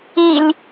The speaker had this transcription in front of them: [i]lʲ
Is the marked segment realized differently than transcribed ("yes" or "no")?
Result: no